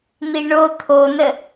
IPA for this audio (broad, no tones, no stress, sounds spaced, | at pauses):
n̪ i ɳ o t̪ʰ o n ə